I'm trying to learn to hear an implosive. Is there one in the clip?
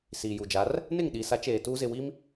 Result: yes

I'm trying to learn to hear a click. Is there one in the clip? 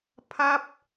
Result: no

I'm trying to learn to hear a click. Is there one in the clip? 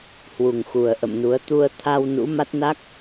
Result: no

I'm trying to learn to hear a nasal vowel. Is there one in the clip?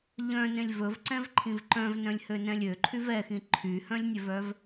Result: yes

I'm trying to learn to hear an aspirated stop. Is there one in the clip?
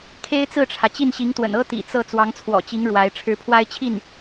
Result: yes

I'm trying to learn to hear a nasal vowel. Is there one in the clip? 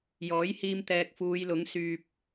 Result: no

